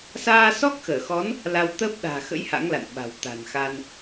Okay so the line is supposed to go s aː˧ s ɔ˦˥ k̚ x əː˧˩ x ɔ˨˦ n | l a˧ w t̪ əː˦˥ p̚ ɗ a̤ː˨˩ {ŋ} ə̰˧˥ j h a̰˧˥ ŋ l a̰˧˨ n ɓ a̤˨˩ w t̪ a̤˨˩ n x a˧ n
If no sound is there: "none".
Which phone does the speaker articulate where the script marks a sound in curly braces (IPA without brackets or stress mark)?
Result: x